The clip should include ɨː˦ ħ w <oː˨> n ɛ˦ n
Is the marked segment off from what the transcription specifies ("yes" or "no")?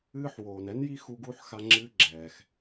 no